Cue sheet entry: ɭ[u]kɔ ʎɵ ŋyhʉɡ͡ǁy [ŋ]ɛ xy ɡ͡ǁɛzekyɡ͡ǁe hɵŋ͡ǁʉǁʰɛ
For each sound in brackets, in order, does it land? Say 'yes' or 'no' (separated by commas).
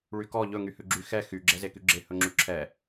no, no